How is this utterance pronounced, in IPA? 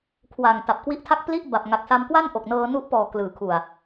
kʰ w a˨˩ ŋ t a˨˩ p̚ k w i˦˥ ʔ tʰ a˥˩ k̚ p l i˥˩ ʔ b a˨˩ p̚ ŋ a˨˩ k̚ s a˧ m k w a˥˩ n ʔ o˨˩ k̚ n ɤː˧ n u˦˥ ʔ p ɔː˨˩ k l ɯː˩˦ kʰ u˨˩ a̯

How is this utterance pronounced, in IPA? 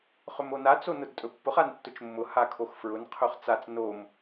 χ ɵ m o n a t͡s o n ʊ d tʼ ɵ pː ʊ χ a n tː ʊ t͡ʃ mː ʊ h a kʰ o x f ɹ ʊ n qʰ ɵ χ t͡s a t͡s n o m

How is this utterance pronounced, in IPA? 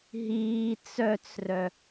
ɦ iː t͡s œ t͡s r œ

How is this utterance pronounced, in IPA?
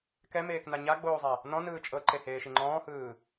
k ɛ m eː k n a ɲ a ɡ͡b oː zˤ a | n ɔ̃ n ɯː t͡ʃʼ ɤ ǃ e h eː ʃ i ŋ͡ǃ ɔ̃ː h ɯː

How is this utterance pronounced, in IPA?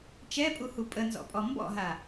t͡ʃ ɛ pʼ u h u pʼ ə n z ɔ̰ pʼ ɔ m b ɔ̰ ɦ a

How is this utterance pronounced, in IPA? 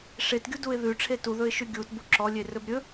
ʂ e t ɡʲ u d u ɪ̯ ð ʉ ʈ͡ʂʰ e t u ð ɵ ɪ̯ ʃ ʉ ɡʲ u t b u ǁ ɔ lʲ e r ɵ b ɾʲ ɵ

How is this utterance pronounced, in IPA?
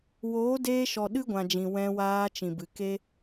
w oː˨˦ d eː˧ ʃ ɔ˨ ɗ ɨ˦ ɡʷ ã˨ d͡ʒ ĩ˨ w ɛ̃˧ w aː˧ t͡ʃ ĩ˨ b ɨ˨ k e˦

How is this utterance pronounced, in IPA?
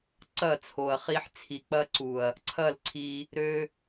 ǀ ɐ˦˨ t͡sʰ o˨ ɐ̯ χ i˦ ħ t͡sʰ i˨ k͡p ɐ˦ ǀ u˨ ɐ̯ | ǀʰ ɐ˦˨ l ǀʰ i˧ | ɾ ø˦

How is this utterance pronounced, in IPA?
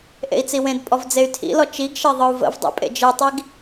ʔ ḛ i̯ t͡s i w ẽ d pʼ ɔ v d͡z e y̯ tʰ ḭ l ɔ t͡ʃ i ɡ ʃ e ðˤ ɯ u̯ v ə̰ v dˤ ḭ pʼ ḛ d͡ʒ ɯ tˤ i ɡ

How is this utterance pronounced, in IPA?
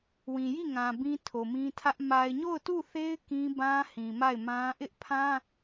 w ĩ˨ j i˦˨ ŋ ã˨ b ĩ˦ tʰ o˨ m ĩ˦ tʰ ä˦ ʔ m a˨ ɪ̯ ɲ o˦˨ ʊ̯ t u˦˨ θ e˦ ɪ̯ k ĩ˦ b ã˦ h ĩ˨ m a˦˨ ɪ̯ m ã˦ ʔ ɪ˦ ʔ pʰ ã˦

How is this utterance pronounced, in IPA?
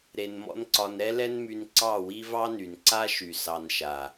ɾ e˧ n m ɔ̰˦ n ǀ ɒ˧ n ɾ ɛ˦ l ɛ˦ n m y˧ n ǀ ɑ˦˨ w i˦ v ɑ˦ n y˨ n ǀ a˦ ʃ y˨ s ɑ˧ n ʃ a˨

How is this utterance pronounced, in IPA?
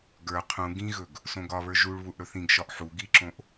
ɡ ə˞ qʰ ũ ɡ ĩ ɣ ɵ ɡ | s õ ɡ ɒ β ə˞ ʒ u ɭ β u ʔ ɽ ɵ θ ĩ ɡ ʃ ɒ ʔ ħ u ɡ i ǁ õ ʔ

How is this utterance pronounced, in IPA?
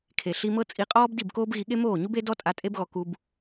kʰ e˨ ɬ i˧ m ɤ˦ t͡sʼ i˧ qʼ ɔː˦ b d i˦˨ b k oː˦ b ɣ i˧ ɠ e˦ m oː˦˨ ɲ u˦ b e˦ d ɔ˦ tʼ a˧ tʼ e˦ b ɣ ɔ˧ k u˦ b

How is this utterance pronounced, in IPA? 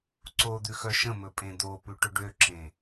ǀ o d̪ ʉ x œ ʃ ə̃ m ɵ pʼ ẽ d̪ o p ʉ ʈ ɵ ɖ ø ǁ ẽ

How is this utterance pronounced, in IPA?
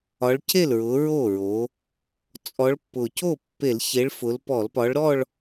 ɒ˨˦ ɭ c e˥˩ l ɹ ʊ˨˦ ɹ o˥˩ ɹ o˨˦ | t͡sʼ ɔ˨˦ ɭ pː ʊ˨˩ c o˥˩ pː e˧˩˧ l ç e˨˦ ɭ f ʊ˨˦ l p ɔ˧˩˧ l p ɒ˨˦ ɭ ɾ ɔ˥˧ ɭ

